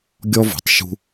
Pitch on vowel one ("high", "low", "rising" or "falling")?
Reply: high